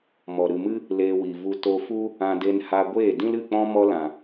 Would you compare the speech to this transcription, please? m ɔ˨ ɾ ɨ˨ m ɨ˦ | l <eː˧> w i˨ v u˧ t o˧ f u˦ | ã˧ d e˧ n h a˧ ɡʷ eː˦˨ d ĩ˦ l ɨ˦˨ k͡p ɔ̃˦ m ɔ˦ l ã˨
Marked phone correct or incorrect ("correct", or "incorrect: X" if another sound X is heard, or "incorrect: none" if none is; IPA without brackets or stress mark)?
correct